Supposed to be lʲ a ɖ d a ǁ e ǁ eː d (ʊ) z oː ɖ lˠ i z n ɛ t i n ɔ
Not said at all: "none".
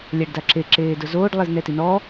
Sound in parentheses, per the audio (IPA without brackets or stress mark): ʊ